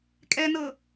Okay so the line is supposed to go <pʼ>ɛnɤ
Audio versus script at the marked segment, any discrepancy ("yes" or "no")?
yes